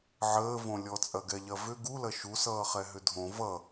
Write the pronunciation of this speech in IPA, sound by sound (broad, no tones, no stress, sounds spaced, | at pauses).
ʕ əː v õ lʲ ɔ t͡sʼ ɐ ɡ ɛ ʎ ɐ v ʏ ɡ u l ɐ ʃ u s ʌː χ ɛ ɦ ʏ dʱ õ v ʌ